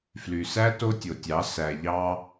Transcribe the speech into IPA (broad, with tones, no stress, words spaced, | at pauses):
fly˨sæ˦ to˦tʲo˨tʲɑ˨˦ sæ˨ʎɑ˧